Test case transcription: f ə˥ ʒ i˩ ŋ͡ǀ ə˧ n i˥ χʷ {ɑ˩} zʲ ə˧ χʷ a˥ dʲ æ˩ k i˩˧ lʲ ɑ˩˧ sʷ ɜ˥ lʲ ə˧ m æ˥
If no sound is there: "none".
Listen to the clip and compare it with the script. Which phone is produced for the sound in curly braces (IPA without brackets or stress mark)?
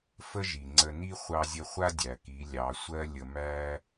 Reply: ɑ˧